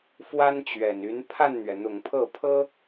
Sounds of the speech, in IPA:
fwa˥nt͡ɕɥɛ˨˩n y˧˥n pʰa˥˩nn̪ɥɛ˩n̪ʊ˨˩ŋ pʰɤ˥˩pʰɤ˥

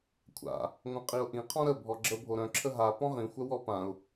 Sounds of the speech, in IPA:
kʷʰa̰ | ŋʷœ̃qʼiʊ̯ʔĩqʰɔ̃ ɾə bʱɔɡ͡ǁəbʱo ɾœ̃ǁʰə ɦa pɔ̃ʁĩxʷœw ɔ pãʊ̯

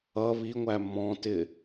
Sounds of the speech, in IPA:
ʌ βiŋʷæ mɔ̃tɪ

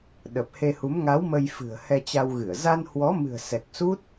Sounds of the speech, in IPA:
ɗə˨˩p̚he˧hu˨˦m ŋa˨˦w mə˧jfɨ̤˨˩ə̯ hɛ˧t͡ɕa˧wɣɨ˧˩ə̯ za˧nhwɔ˨˦mɨ̤˨˩ə̯ sɛ˨˩k̚su˦˥t̚

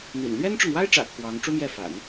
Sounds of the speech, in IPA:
n̪ḭ˨˩n lɥɛ˥nʈ͡ʂʊ˨ŋwa˥ɪ̯ʈ͡ʂä̰˨˩ kʰwɑ˧˥ŋ ʈ͡ʂu˥mjɛ˥˩fa̰˨˩˦n

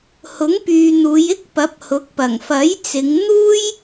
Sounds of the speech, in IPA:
hʊ˨˥ŋpyː˨ n̪uː˨˧jɪ˥k̚ pɐ˨˥p̚hʊ˨˥k̚ pɐ˨˩ŋfɐ˨˥jt͡sɪ˨˧ŋ n̪uː˥j

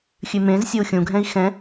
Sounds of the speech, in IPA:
xʲʉmẽzsʲou̯ xʲũɡʱɛ̃i̯ xɛ̃

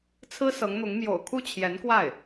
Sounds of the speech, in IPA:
t͡sʰɹ̩˥sɤ˧˥ŋn̪ʊ˧˥ŋ mjo̰˨˩ʊ̯kʰu˥˩ t͡ɕʰjɛ˧˥nkwa˥˩ɪ̯

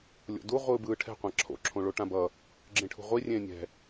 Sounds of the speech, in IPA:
lʲo̰du ʁʷɯːbɯːʈʰɛ̤ qʷãǁʰo̰ ǁʰõɭoʈãbʌ | ɡ͡ǁẽʈʰṳʁʷi rʲẽːnʲɛ̤

